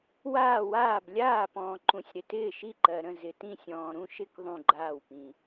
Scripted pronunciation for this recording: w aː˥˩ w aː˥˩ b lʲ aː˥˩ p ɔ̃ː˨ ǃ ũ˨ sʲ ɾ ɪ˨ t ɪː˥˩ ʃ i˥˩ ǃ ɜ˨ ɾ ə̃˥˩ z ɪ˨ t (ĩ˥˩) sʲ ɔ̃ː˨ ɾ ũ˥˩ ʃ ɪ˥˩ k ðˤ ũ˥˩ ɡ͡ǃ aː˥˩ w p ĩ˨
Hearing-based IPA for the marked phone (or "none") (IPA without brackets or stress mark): ĩ˥˩